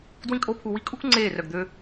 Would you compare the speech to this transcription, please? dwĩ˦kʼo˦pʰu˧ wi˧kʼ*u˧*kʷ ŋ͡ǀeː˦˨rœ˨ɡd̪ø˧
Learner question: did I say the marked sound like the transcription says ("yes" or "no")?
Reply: no